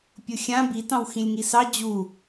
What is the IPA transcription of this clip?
pʲ ʊ xʲ ã b i t ɑ̃ w x ĩ lʲ ŋ i s ɑ d͡ʑ u

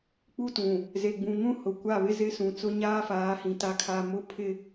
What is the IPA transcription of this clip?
k͡p u˦ t ũ˨ | z e˨ ɡ͡b ũ˨ ŋ ũ˦ h ʊ˨ kʷ a˦˨ β ɪ˦ z ɪ˦ s ũ˨ t͡s ʊ˦ ɲ aː˦ f aː˨˦ h ĩ˨ t a˨ kʰ a˨ m ʊ˦ pʰ ɪ˦

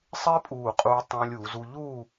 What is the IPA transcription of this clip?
sˤ ɪː˥ pʼ uː˧˩ qʼ uː˧ tˤ õː˧ lʲ uː˩˧ z u˧ ʎ uː˥˧

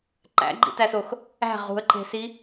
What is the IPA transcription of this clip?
ǃ æ̰ ɡ͡ǃ ḭ t æ s o x | æ̤ ʁ ṳ ə̯ ǃ e̤ s i

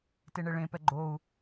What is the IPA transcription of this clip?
t e ɳ e ɭ ẽ p ɛ ɡ͡ǃ o u̯

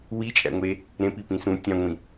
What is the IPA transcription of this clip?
w i t͡ʃʼ æ̰ ŋʷ e | ɾ ẽ p i p ĩ s ũ tʲ ɑ̃ ŋʷ ĩ

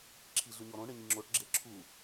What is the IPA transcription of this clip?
ǁʰ i ɮ ʉ ɲ ɔ ɾ õ ɳ ɘ ɲ i ŋ͡ǁ o ʈ ɡ͡ǁ e ǁʰ u

